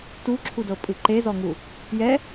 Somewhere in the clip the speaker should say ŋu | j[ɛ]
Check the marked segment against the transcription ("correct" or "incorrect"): correct